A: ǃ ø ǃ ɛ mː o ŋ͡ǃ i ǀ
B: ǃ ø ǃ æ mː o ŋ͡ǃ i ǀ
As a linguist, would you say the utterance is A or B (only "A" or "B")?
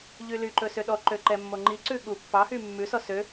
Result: A